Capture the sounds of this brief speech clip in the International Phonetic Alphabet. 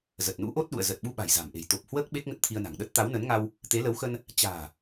zə˨˩t̚nṵ˧˥ʔo˦˥t̚ɗṵ˧˨ə̯ zə˨˩t̚ɓu˧ ɓa̤˨˩jza̤˨˩mʔe̤˨˩j t̪o˨˩p̚hwəː˦˥k̚ ɓe˦˥k̚ŋə˦˥t̚t̪ʰi˧ə̯na̤˨˩ŋ ɗə˦˥t̚t̪a˨˦wnə˨˦nŋa˧w | t̪e˨˦lə˨˦wxə˧n | t͡ɕa̤ː˨˩

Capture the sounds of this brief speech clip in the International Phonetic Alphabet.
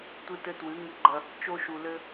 tʷɨ˦tɘ˦ twɨ˨˦ŋɨ˧ɡ͡ǃɐ˧ | t͡ʃo˧ʃu˨lɘ˧

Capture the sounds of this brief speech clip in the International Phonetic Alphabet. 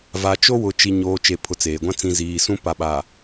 va˨t͡ʃo˦wʊ˨ t͡ʃi˨ɲoː˨ t͡ʃe˨pʰʊ˨ t͡seː˨ɡʷã˦ t͡sĩ˨ziː˨sũ˦ pa˨ɓa˨

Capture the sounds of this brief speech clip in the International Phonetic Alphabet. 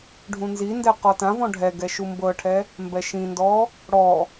ɖʱũnzindɛ qɔtãvɔ̃ ɖʱɛɡɛ ʃumbɤʈʰɛ | mbɛʃĩndɔ | ɽɔ

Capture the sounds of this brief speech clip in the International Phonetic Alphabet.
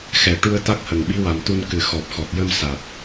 xɛ˨˩ʈu˧ə̯ t̪a˦˥k̚hə˨˩ŋɓi˧˥ wa˨˩mt̪u˧nkɨ˨˩ xɔ˨˩p̚xɔ˨˩t̚jə˧m sa˨˩t̚

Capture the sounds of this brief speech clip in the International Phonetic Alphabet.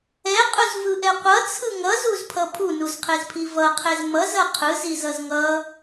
ɛqʼuzvɯʔɛ qʷʌt͡sʰɯ ŋʌzuzpʰʌ pʰunuzqʰezpʰi vʌqʰez mʌzʌ qʰɯzizʌz ŋʌ

